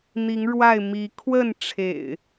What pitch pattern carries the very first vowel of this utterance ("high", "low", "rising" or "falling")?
rising